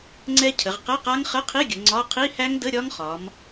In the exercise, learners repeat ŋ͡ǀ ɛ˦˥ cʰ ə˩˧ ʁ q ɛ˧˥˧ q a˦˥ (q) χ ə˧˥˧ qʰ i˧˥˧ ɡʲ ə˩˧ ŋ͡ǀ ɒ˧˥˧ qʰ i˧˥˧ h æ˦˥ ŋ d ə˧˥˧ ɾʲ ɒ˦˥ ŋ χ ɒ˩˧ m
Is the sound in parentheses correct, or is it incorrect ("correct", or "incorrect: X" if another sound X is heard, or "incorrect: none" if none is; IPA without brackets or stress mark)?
incorrect: ŋ